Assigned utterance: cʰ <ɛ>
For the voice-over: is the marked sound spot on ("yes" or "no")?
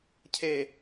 no